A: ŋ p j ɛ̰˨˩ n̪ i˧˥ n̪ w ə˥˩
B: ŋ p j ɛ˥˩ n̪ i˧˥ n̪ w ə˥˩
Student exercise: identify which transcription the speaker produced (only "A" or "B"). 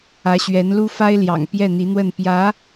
B